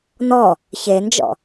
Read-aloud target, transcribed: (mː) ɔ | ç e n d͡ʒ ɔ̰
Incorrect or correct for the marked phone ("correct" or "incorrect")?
incorrect